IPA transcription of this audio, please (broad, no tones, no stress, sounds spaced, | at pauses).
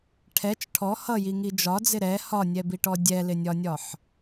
ʈʰ ɛ t͡ʃ ʈʰ ɔ h ʌ j i ŋ i d͡ʒ ɒ d͡z ɪ ɾ ɛ h ɒ nʲ ɛ b i ʈ ɔ dʲ ɛ l ɪ nʲ ɒ nʲ ɒ ħ